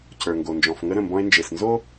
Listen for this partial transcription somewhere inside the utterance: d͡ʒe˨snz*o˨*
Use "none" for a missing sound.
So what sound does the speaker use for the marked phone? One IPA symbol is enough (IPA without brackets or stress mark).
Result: o˦